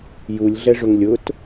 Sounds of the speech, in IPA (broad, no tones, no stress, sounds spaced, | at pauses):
j u lʲ ɮ ɛ ʐ ʊ ŋ lʲ ʊ t